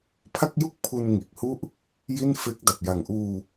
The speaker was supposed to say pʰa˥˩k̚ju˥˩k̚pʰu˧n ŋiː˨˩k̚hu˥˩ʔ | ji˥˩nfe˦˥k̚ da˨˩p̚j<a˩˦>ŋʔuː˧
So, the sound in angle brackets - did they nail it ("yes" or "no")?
no